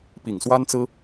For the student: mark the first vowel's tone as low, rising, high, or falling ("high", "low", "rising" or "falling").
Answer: low